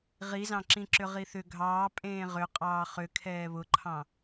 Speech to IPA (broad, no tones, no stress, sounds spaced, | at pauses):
ʁ i z ɑ̃ ǁ ĩ ǁ ʏ ʁ i θ ʏ ɡʱ ɑː pʼ ẽː ʁ ʏ qʼ ɑː χ ʏ kʰ ɛː β ʊ ǃʰ ɑ̃